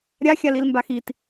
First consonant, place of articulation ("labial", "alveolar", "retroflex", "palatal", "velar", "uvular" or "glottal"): alveolar